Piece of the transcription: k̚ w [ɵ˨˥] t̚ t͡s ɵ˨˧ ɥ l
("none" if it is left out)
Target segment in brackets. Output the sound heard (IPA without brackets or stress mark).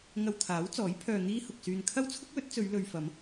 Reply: ɵ˨˥